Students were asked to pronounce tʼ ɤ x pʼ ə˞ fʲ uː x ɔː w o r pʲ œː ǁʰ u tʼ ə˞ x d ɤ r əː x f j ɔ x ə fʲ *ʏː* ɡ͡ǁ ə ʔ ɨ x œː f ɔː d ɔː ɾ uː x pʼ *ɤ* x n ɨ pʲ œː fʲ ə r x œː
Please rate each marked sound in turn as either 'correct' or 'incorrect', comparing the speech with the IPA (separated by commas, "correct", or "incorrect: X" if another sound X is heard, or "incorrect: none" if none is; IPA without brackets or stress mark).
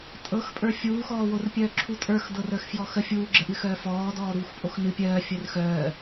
incorrect: uː, incorrect: o